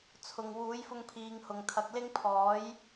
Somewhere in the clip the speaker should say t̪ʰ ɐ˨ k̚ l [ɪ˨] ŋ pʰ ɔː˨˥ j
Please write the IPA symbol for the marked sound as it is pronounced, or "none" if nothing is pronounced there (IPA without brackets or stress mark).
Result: ɪ˥